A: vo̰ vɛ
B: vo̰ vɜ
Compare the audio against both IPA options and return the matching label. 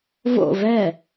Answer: A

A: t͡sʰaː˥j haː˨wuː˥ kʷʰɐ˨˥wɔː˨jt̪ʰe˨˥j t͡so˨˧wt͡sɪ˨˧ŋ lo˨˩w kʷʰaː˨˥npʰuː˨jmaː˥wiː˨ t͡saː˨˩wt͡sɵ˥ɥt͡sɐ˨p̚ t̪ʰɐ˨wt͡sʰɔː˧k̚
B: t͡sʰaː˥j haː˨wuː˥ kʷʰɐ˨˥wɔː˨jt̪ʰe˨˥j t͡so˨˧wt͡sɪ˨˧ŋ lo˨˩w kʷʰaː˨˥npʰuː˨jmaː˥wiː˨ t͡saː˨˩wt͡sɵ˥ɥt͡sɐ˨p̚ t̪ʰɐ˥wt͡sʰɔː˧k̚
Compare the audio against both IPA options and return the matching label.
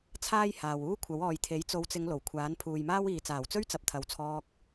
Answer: A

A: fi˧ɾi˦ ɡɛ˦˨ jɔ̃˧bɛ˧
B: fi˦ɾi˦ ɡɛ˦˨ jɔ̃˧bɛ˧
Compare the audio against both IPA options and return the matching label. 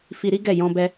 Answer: A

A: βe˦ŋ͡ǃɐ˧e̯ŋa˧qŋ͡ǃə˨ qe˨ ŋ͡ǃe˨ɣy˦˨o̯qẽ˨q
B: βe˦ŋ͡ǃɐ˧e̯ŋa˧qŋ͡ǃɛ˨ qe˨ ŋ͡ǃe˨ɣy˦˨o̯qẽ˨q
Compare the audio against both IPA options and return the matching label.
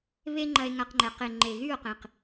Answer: B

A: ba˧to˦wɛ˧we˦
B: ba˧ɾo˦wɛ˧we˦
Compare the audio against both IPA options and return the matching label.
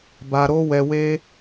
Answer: B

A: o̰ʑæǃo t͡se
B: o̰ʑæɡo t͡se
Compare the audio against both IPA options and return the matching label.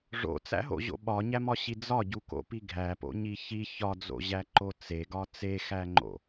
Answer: A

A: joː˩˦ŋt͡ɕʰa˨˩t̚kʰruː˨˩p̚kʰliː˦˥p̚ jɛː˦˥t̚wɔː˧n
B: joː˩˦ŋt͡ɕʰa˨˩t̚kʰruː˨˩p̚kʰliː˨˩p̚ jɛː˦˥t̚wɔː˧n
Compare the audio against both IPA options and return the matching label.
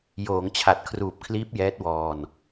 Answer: A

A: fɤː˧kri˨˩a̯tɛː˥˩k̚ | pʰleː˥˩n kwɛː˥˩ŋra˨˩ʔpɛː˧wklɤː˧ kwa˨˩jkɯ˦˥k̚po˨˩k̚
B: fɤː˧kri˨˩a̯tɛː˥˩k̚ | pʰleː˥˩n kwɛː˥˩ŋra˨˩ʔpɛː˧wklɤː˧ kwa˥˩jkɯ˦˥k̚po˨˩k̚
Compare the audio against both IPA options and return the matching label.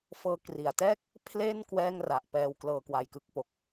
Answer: A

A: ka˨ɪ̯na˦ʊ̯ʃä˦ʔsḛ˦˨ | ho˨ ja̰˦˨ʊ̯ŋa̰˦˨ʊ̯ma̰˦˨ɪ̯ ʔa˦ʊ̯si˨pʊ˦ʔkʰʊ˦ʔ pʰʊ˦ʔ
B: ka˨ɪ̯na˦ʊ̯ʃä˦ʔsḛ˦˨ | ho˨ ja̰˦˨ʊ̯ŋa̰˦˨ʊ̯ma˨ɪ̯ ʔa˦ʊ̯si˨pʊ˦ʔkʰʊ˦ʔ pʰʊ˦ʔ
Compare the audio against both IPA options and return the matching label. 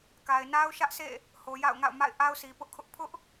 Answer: A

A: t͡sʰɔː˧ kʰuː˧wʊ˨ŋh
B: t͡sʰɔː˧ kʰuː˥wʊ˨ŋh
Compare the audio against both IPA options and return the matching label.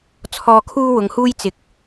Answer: B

